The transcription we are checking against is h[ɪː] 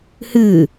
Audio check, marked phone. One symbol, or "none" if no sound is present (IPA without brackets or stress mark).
ɨː